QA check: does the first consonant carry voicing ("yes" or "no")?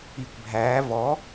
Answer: no